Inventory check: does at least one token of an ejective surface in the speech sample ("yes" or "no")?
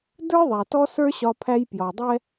no